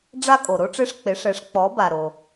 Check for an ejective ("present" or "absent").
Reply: present